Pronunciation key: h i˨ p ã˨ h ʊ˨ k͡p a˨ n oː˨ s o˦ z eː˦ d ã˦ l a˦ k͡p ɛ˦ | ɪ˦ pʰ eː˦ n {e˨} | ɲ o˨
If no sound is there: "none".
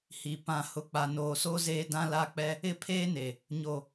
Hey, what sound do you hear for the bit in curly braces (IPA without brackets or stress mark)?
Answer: e˨